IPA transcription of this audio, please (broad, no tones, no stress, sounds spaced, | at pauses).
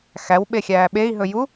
x æ w ɓ e xʲ æː ɓ e i̯ ɦ ɵ j u